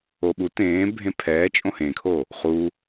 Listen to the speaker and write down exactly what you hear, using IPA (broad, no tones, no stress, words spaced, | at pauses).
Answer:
oɓu tẽː bʱẽpʰɛː t͡ʃʼõhẽkʰo | χu